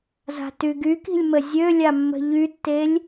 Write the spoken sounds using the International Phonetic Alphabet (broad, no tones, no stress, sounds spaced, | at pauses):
z a̤ t y ɡ y k i̤ lʲ m ə zʲ ø lʲ a mː ə̤ ʎ y tː e lʲ